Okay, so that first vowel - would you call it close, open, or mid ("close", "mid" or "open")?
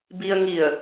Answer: close